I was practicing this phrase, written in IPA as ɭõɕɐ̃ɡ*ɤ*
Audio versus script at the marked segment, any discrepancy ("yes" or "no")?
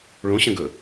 yes